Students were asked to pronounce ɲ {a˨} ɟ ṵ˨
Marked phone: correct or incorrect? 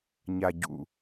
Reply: correct